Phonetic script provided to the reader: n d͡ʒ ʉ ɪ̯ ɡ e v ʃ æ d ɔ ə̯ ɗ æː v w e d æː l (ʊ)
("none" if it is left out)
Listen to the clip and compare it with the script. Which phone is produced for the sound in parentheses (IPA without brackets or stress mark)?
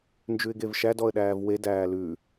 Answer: ʉ